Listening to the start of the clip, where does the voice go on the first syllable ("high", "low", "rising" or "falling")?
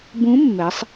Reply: rising